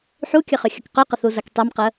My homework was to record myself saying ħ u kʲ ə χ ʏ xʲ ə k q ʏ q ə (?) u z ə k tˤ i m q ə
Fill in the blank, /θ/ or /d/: θ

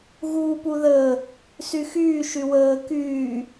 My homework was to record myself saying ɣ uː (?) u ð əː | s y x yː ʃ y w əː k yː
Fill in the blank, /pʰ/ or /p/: p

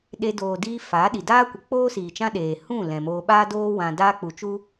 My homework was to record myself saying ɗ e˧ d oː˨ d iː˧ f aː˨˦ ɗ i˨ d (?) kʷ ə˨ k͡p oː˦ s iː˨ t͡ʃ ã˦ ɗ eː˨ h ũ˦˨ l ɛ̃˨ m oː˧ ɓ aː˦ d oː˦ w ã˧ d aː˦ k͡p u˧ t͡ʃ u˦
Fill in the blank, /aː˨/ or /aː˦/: aː˦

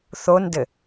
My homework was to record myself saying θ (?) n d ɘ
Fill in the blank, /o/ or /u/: o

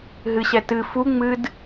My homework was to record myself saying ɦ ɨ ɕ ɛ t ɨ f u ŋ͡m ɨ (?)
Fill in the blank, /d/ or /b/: d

